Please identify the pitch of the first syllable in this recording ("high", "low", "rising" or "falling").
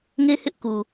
high